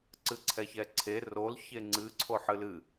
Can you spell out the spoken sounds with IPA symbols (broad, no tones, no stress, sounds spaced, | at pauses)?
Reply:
ǀ ɨ ǀʰ ɛ ç ɛ ǀʰ e r o l ç e ŋ͡ǀ ɨ ǀʰ o ħ ɨ l ɨ